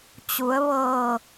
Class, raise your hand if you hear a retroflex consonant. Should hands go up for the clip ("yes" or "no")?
no